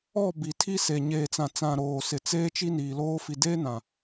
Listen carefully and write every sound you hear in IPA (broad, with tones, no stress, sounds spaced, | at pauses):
ɔ˦˨ b i˨ tʰ i˦ s e˨ ɲ eː˨ t͡s ã˨ t͡s ã˨ ɾ oː˨ s ɪ˨ t͡s eː˦ t͡ʃ i˦ n iː˨ l oː˦ f i˨ d eː˦ n ã˨